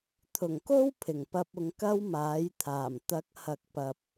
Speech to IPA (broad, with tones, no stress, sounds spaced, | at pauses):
t̪ʰ ʊ˨˩ ŋ k o˥ w pʰ ɪ˨˩ ŋ p ɐ˧ p̚ ʊ˨˧ ŋ k ɐ˥ w m aː˨˥ j t̪ʰ aː˨˩ m t̪ ɐ˨˥ k̚ h ɐ˧ k̚ p ɐ˧ p̚